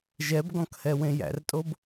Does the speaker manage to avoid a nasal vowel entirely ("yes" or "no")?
no